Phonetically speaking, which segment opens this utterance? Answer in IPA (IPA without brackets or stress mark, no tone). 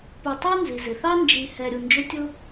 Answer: p